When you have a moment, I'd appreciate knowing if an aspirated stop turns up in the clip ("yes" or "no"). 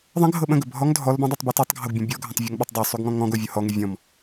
no